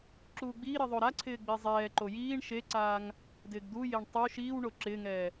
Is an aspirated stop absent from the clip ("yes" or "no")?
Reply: no